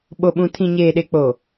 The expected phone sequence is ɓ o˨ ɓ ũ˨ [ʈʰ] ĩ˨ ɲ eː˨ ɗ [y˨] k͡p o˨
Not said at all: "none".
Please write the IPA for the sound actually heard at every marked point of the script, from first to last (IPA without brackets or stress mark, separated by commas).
tʰ, e˨